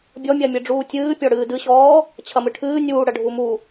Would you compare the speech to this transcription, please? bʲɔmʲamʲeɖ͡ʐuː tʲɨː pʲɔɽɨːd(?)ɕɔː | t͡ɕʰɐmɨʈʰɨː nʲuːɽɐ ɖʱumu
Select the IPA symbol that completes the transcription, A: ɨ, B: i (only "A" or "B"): A